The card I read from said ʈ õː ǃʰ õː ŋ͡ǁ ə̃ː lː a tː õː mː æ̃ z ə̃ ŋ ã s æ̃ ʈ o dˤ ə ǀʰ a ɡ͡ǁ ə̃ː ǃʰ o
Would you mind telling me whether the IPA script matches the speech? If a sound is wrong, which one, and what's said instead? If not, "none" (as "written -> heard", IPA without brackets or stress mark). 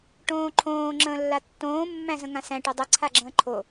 none